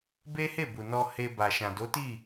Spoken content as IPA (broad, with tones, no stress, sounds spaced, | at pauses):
b e˦ h e˦˨ b u˨ n ɔ˧ h e˧ b a˨ ʃ ã˨ d o˨˦ t i˦˨